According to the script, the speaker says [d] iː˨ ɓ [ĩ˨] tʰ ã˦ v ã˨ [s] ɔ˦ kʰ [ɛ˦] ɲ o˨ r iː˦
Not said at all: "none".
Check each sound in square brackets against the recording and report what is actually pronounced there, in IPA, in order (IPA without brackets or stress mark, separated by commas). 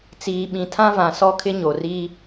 t͡s, ĩ˨, s, ɪ˦